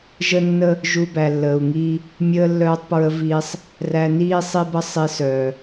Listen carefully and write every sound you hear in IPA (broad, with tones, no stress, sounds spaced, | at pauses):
ʒ ə˦ nː ə˦ | ʒ u˧ b æ˨ lː əː˨ u̯ ŋ iː˦ | mʲ əː˧ lː œː˧ tˤ p ɹ ə˧ v iː˦ sˤ | r æ˧ n iː˦ sˤ i˦ b ə˦ sˤ i˧ s œː˨